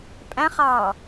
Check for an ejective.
present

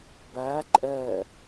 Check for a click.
present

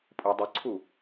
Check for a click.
present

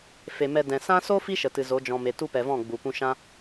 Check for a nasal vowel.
present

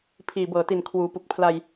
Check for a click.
absent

